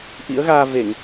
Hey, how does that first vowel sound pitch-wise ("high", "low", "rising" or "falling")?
rising